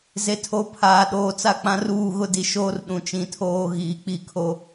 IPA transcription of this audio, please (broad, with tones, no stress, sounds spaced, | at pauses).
z e˨ tʰ o˨ pʰ aː˨ ɗ oː˨ t͡s a˦ k͡p ã˦ r uː˦˨ ɣ ʊ˦ d i˨ ʃ oː˦ r ɗ ũ˨ t͡ʃ ĩ˨ tʰ oː˦ ɣ iː˨ k͡p i˦ kʰ o˦